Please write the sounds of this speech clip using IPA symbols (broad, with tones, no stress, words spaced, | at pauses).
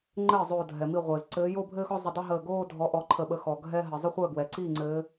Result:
ŋ͡ǃɘː˥˩ zˤoː˧˩dʱɛ˩ mi˧˩ ʁʷɘː˩zǀɘː˨˦ jo˥˧bʱɘː˥˧xɔ˥˧ zˤɵ˧˩dˤɛ˥˧ɦəː˧˩ ɡoː˥˧ dʱɔ˨˦ʔɔ˨˦ǃʰə˧˩ɓə˧˩ xɔ˩ ɡʱɛ˥˧ɦə˩ zˤə˥˧χʷəː˥˩ɡwɛ˩ ǀiː˥˩ŋ͡ǀɘː˨˦